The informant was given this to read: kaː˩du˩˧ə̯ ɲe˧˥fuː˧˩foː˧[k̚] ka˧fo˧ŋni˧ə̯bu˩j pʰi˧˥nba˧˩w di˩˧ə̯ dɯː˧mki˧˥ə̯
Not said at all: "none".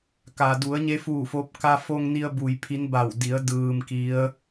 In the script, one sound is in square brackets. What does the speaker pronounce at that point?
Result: p̚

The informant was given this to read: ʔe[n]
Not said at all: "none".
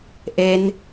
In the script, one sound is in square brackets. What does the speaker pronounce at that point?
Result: n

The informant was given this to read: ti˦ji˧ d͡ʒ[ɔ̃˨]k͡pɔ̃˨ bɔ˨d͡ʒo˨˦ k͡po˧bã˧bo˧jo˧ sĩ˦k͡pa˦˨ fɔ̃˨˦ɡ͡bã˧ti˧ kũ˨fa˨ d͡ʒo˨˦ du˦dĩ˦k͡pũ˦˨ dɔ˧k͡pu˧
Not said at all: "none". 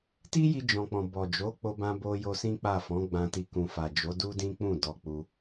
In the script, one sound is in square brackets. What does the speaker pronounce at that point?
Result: ɔ̃˨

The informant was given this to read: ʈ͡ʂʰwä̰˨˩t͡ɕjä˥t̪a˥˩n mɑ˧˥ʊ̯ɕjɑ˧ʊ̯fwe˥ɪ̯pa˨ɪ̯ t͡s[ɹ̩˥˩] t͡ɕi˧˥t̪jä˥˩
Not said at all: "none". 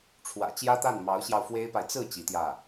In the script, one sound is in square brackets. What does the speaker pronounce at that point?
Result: ɹ̩˥˩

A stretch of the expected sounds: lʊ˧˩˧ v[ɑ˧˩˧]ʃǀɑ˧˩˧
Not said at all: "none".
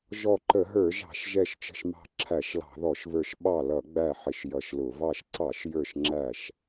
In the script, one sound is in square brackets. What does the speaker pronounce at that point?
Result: ɑ˧˩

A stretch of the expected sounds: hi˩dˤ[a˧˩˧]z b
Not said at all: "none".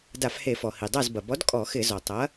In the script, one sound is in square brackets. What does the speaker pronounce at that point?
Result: a˥˨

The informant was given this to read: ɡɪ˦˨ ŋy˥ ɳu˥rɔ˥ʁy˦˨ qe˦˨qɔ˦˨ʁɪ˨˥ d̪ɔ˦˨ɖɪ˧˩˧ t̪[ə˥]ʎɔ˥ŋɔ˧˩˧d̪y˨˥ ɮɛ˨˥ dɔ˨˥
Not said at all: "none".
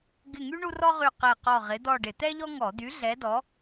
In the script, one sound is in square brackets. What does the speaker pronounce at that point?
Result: ɛ˥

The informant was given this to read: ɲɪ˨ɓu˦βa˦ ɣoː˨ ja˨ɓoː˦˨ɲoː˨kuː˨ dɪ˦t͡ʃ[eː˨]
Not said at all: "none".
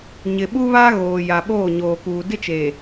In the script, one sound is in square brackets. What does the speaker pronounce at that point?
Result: eː˨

